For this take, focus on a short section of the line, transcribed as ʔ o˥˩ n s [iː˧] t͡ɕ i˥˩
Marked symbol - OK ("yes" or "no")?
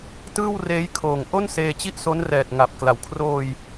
no